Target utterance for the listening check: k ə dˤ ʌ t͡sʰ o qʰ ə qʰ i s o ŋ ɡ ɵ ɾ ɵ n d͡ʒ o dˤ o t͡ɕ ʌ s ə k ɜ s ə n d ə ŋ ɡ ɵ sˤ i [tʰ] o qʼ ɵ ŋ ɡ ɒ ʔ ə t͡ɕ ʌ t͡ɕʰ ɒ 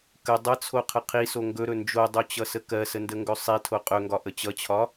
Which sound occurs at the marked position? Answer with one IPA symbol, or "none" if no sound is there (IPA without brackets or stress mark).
tʰ